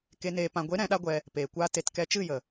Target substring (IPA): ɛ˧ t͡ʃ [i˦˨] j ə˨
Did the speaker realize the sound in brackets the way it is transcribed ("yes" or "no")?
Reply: no